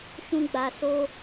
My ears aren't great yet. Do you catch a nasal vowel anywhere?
yes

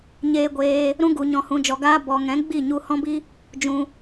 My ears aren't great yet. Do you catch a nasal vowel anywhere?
yes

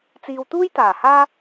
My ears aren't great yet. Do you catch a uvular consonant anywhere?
no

